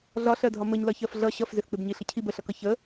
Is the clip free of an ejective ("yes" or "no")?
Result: yes